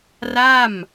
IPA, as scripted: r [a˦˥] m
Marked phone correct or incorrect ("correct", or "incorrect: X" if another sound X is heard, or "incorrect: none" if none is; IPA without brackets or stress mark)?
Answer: incorrect: a˥˩